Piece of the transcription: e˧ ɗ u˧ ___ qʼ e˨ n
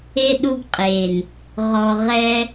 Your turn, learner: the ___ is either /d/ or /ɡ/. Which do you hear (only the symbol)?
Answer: ɡ